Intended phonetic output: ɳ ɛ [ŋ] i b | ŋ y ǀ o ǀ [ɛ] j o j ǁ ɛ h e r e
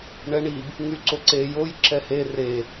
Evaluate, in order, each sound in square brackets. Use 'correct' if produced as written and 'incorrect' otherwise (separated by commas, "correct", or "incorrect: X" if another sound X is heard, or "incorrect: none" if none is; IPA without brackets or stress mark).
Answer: incorrect: ɳ, incorrect: e